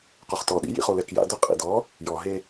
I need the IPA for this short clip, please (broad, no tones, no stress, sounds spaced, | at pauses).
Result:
q o χ t ɔ ɗ ḭ j ḭ χ o l ɛ k j a̰ d ʊ qʼ ḭ d ɔ | j ɔ ɦ e